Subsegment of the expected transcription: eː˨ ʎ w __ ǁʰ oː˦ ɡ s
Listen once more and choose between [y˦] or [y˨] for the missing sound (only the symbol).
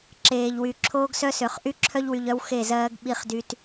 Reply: y˨